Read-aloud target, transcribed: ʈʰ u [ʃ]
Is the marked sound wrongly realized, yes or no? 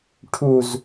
yes